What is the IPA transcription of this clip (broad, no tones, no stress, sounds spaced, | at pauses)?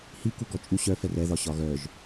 h i k u ɡ ɔ t͡ʃʼ u ɕ œ f ɛ r ɛ ð ɒ ɕ ɒ ɣ œ ʒ